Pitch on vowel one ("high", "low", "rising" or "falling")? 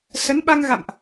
rising